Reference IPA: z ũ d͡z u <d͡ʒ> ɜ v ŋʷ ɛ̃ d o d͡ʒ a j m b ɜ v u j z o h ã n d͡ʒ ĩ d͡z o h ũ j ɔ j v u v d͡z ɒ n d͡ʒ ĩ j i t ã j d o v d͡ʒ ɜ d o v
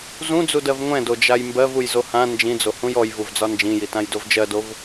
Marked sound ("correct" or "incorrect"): incorrect